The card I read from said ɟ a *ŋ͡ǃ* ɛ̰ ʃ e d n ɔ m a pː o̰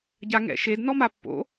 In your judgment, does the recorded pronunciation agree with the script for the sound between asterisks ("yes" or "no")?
no